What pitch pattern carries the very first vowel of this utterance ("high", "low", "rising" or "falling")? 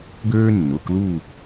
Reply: high